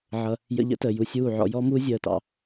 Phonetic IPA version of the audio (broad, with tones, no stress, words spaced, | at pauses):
ʕʌ˧ | jə̰˧ʎə̰˦təː˨ ju˧sʲuː˦˨ ʕɔ̰˧ jɔ˦muː˦ zʲəː˦˨tɑ̰˧